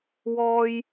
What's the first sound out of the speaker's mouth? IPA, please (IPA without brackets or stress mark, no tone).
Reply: w